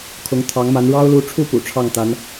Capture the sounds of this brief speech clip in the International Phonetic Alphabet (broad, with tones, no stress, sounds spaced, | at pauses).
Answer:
kʰ ʊ˧˥ ŋ t̪ʰ ɑ˧˥ ŋ m a˧˥ n ɻ ɑ˥ ʊ̯ l u˧˥ ʈ͡ʂʰ u˥˩ p ṵ˨˩ ʈ͡ʂʰ ɑ˥˩ ŋ t̪ a˧˥ n